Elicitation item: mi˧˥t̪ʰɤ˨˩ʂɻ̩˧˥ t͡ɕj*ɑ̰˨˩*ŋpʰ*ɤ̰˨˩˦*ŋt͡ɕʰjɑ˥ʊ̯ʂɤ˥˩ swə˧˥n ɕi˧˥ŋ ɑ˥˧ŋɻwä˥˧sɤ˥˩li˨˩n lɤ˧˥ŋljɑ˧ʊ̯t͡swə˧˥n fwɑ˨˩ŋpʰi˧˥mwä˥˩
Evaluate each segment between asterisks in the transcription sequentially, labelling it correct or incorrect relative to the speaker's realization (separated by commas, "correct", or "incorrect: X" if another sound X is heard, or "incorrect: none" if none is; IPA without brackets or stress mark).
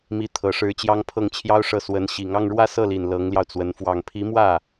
incorrect: ɑ˥, incorrect: ɤ˥˩